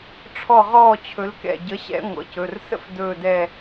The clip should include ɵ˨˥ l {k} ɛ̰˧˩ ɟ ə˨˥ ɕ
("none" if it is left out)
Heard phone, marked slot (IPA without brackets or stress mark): k